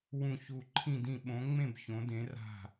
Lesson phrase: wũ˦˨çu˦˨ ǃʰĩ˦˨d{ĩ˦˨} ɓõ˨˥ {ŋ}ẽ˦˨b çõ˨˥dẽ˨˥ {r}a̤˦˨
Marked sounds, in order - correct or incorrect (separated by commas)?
correct, incorrect, correct